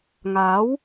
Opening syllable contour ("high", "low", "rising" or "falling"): rising